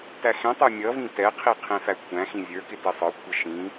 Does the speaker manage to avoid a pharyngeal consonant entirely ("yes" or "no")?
yes